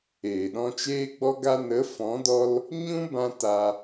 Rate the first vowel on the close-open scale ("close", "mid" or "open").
mid